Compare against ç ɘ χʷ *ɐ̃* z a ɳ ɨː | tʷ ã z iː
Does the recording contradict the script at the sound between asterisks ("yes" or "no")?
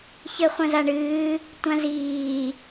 no